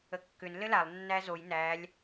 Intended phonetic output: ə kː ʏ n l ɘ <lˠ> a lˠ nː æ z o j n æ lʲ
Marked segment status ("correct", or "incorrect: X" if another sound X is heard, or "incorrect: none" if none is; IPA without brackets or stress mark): incorrect: l